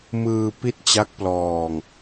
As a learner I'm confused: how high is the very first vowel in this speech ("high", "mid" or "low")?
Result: high